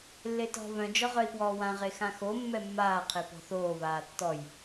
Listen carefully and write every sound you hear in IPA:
lː e t ɔ̤ β œ̃ d͡ʒ ɔ ʁ œ i̯ p w ɔː w ã ʁ e x ã x o mː ɛ mː aː qʰ e p ɔ̤ θ oː β aː tː ɔ j

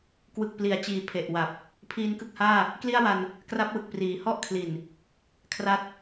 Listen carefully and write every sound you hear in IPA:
k w ɯ˨˩ k̚ p l i˩˦ a̯ t͡ɕ iː˩˦ pʰ e˨˩ ʔ w a˨˩ p̚ | pʰ iː˧ n k ɯ˥˩ k̚ h aː˥˩ | k l i˥˩ a̯ w a˧ n | k r a˦˥ p̚ w ɯ˨˩ k̚ p r iː˩˦ h ɔ˥˩ ʔ kʰ l i˨˩ n | kʰ r a˦˥ t̚

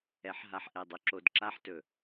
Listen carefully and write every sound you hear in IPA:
ɛ˨˦ ħ ɦ a˨ ħ ʔ ɛ˨ dˤ ɵ˨ ǁ o˨ d ǁ a˦ ħ t ɵ˨

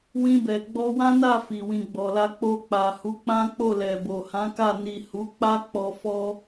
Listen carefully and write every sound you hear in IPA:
w ĩ˧ b ɛ˨ ɡ͡b ɔ˧ w ã˦ n a˦˨ f i˨ w ĩ˨ ɡ͡b ɔ˨ l a˧ k͡p o˧ k͡p a˨ h u˨˦ k͡p ã˦ k͡p o˦˨ l ɛ˨ b o˨ h ã˨˦ k a˦˨ n i˨ h u˨˦ k͡p a˦ k͡p ɔ˧ f ɔ˦

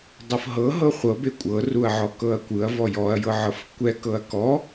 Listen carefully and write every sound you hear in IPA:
dˤ ɤ f ɦ ɤ ɦ ɤ χʷ ɤ b e kʷʼ ɤ r u ɐ̯ ʕ ɔ k ɤ ɐ̯ kʷ ɯ ɐ̯ v ɔ j ɔ ɐ̯ j ɤ ʕ ɤ f kʷ ɛ k ɤ ɐ̯ k ɔ

